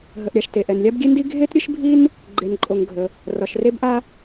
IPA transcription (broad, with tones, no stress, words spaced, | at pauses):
ɦə˩ʔɾʲa˩ʃ te˩ʔɛ˩nlʲa˥b ɡʲe˥ndi˥ ɡʱe˥tɾʲɨ˥ʃbʱi˥n | ɡ͡ǃe˩nǃʼo˩ŋ ɡʱə˩ | rɒ˩ʃre˥bʔa˥